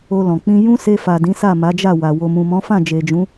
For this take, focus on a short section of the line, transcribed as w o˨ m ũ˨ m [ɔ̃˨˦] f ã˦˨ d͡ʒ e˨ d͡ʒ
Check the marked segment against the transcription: correct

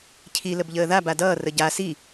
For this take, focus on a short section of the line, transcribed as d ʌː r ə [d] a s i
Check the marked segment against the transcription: incorrect: ɟ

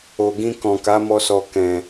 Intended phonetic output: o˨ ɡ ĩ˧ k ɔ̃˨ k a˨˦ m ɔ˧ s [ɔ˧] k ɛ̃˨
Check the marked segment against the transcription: incorrect: ɔ˨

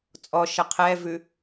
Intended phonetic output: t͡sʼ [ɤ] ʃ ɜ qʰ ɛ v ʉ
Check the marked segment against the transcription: incorrect: ɔ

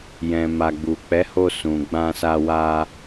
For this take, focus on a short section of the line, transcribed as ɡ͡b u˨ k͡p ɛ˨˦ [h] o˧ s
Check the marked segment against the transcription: correct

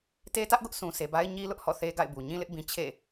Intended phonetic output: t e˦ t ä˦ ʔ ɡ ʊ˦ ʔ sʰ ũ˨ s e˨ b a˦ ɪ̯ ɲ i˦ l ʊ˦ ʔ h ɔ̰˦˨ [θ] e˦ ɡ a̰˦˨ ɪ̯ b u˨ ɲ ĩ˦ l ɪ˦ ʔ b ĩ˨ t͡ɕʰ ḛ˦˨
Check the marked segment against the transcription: correct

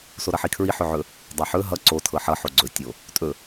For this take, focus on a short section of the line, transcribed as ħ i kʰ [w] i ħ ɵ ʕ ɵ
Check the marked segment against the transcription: incorrect: ɹ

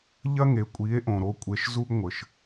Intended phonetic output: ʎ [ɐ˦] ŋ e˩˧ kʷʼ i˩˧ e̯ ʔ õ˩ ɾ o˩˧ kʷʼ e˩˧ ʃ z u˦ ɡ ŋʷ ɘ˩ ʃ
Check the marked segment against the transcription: correct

